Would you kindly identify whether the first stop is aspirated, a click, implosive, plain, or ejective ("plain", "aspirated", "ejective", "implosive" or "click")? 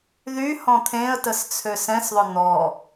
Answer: aspirated